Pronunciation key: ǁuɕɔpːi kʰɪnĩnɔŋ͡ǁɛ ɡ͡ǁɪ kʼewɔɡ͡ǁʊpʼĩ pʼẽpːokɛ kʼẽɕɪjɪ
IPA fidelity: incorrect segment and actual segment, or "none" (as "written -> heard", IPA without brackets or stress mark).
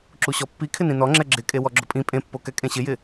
none